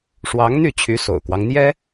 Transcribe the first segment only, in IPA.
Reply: ʂ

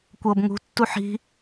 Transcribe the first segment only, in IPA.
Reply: kʷ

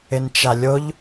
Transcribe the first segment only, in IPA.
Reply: ɪ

